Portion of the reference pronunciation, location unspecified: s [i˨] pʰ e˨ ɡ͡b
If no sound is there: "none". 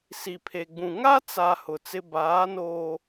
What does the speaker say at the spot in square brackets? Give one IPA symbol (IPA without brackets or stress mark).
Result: i˨